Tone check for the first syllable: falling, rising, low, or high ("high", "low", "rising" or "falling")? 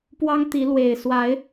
high